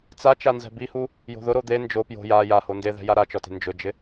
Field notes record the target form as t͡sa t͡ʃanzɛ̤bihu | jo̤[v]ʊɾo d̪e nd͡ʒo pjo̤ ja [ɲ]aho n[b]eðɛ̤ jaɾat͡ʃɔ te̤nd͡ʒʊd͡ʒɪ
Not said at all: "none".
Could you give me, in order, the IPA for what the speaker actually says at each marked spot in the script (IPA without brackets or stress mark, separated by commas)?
ð, j, d